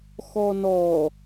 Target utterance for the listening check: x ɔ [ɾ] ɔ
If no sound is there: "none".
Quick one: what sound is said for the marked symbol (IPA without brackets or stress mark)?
n